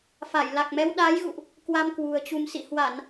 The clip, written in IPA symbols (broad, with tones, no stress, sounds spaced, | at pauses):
f a˧˩ j l a˨˩ k̚ m ɛ˨˦ w ɗ a˨˦ j ɣ ṵ˧˨ ʔ | k w a˧ m k w ṳ˨˩ ə̯ t͡ɕ u˧ m s ḭ˧˨ h w a˧˩˨ n